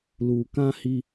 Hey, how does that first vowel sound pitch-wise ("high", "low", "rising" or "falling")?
low